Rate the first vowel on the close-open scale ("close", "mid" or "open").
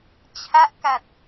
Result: open